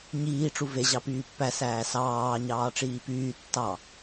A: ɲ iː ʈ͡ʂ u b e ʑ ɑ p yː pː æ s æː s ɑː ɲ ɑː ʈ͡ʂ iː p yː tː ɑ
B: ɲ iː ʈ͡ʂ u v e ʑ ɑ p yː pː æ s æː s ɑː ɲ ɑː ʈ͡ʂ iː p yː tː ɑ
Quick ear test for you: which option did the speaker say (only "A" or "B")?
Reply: B